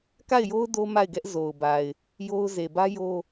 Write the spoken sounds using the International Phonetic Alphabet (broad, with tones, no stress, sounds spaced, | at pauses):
k a˦˨ ɪ̯ j o˦ ʊ̯ d o˦ m a˦˨ ɪ̯ ɡ ɛ˦ ʔ z o˨ ʊ̯ b a˨ ɪ̯ | j o˦ ʊ̯ z e˨ b ä˦ j o˦